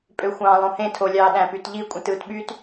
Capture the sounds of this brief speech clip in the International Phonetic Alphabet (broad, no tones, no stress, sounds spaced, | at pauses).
pʼ ø xʷ ɑ̃ lˠ õ h ẽ tʰ o lʲ ɑː ɗ æ̃ p y t ʎ i kʷʼ ĩ t ɯː t ɓ y t